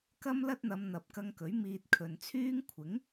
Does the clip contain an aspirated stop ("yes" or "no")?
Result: yes